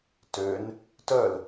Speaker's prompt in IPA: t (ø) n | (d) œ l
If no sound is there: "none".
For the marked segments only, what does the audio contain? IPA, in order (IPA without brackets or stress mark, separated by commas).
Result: ø, t